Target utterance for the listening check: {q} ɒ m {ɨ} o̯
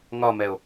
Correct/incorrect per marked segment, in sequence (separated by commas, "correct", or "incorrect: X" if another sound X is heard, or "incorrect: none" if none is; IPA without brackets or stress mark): incorrect: ŋ, incorrect: ɛ